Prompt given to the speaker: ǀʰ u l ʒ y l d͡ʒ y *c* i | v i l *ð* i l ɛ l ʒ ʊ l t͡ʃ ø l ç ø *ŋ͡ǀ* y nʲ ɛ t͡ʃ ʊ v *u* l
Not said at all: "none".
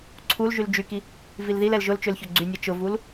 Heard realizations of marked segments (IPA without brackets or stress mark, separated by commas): k, ð, ɡ͡ǀ, u